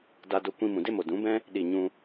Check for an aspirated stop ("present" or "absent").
absent